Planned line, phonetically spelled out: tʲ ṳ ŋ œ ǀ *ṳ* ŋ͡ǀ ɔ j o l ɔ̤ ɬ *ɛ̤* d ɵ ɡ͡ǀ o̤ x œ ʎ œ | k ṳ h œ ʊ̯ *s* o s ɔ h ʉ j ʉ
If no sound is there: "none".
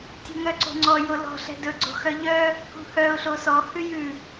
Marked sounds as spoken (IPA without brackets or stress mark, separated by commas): o̤, ɛ̤, ɬ